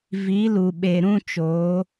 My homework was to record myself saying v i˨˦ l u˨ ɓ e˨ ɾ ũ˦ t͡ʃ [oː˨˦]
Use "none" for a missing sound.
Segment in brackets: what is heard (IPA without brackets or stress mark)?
oː˨˦